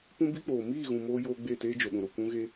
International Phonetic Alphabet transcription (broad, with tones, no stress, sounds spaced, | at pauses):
p ũ˦ b i˦ k͡p oː˨ m iː˦˨ ɣ ũ˨ m oː˦ j oː˦ ɡ͡b e˦˨ t eː˦ d͡ʒ o˨ ɗ ũ˨ ɾ o˨ kʷ ũ˦ ɣ e˦